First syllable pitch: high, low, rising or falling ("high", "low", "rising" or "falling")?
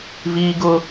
high